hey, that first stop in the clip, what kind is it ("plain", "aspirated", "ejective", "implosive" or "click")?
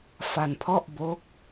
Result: aspirated